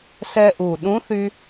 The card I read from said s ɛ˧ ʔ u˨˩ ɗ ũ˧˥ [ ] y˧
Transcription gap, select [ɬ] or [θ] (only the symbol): θ